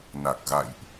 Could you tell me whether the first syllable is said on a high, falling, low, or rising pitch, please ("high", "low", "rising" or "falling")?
low